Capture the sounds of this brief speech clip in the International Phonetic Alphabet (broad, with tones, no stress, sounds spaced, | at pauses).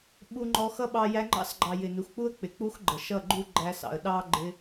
ɓ u˧ ŋ͡ǃ ɔ˧ x ʌ˦ ɓ ɑ˧ j æ˧ ŋ͡ǃ ɑ̰˦ s ɡ͡ǃ ɑ˨ j ɪ˨ n u˨ x k͡p u˦ ə̯ k͡p ɪ˨ k͡p u˦ x ɡ͡ǃ ə˨ ʃ ʌ˦˨ ɡ͡ǃ u˦ ɡ͡ǃ æ˧ s ɑ̰˨ ə̯ ɗ ɑ˦ ɡ͡ǃ ɪ˧